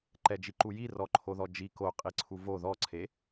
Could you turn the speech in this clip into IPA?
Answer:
ǃ ɛ d͡ʒ i ǃ u j i r ɔ ǃʰ o ð ɔ d͡ʒ i k o qʼ i ǀʰ u v o ð ɔ ǀʰ e

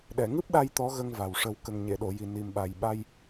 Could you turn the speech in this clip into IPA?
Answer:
ɗ ɛ˨˩˨ ŋ ɨ˦˥ p̚ ɗ a˧ j t̪ ɔ˧˥ ɣ ə˧ ŋ v a˨˩ w ʂ ə˨˩˦ w k ə˨˩ ŋ ɲ e˨˩˨ ɗ o˨˩˨ j i˨˩ n i˨˩ m ɓ a˨˩ j ɓ a˧ j

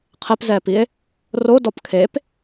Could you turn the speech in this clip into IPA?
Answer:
qʰ ɛ p z ɛː p i e̯ | r o d ɔ p kʰ e p

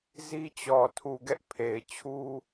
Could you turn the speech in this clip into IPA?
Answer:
z i˦ t͡ɕ ɔ˨ tʰ u˨ ɡ ɛ˦ ʔ pʰ e˨ ɪ̯ t͡ɕʰ u˦

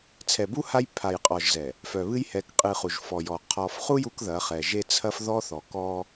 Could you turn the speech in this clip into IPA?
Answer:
t͡sʰ ɛ˨ b u˦ h a˦ j pʰ a˨ j qʼ ɔ˨ ʒ z ɛ˨ | f œ˨ β ɨ˦ j h ɛ˨˦ k qʼ ɨ˨ χ u˨ ʒ f ɔ˨ j ɔ˨ qʰ ɔ˨ f χ u˦ j u˦ k ð ɐ˨˦ χ ɛ˨ ʒ e˦ t͡sʰ ɐ˦ f ð ɔ˦ θ ɔ˨ k ɔ˦

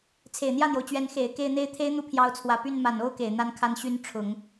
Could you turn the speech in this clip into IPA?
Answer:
t͡sʰ e˨˩ ɪ̯ n̪ j ä˥˩ n̪ j o˩ ʊ̯ t͡ɕ ɥ ɛ˧˥ n x e˨˩ ɪ̯ k e˥˧ ɪ̯ n̪ e˥˩ ɪ̯ t̪ʰ e˥ ɪ̯ n̪ u˥˩ pʰ j ɑ˧˥ ʊ̯ t͡sʰ w ä˨˩ p y˥˩ n m a˨˩ n o˥ ʊ̯ k e˨˩ ɪ̯ n̪ a˥ n kʰ a˥ n ɕ y˥ n ʈ͡ʂʰ ʊ˨˩˦ ŋ

